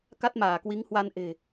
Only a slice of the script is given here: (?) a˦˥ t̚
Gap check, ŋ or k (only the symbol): k